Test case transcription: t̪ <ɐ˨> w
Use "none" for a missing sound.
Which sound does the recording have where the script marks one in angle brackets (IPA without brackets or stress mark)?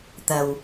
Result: ɐ˨